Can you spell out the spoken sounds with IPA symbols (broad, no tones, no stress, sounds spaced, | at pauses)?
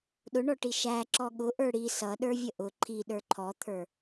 ɗ ʊ ɳ ɔ ʈ i ʃ æ ǁ ɔ ɠ ʊ ʔ ə˞ ɽ i s ʌ ɗ ə˞ vʲ ə ʔ ʊ ǃʰ i ɗ ə˞ ǃʰ ɔ t̪ʰ ə˞